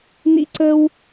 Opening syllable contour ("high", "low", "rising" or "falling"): high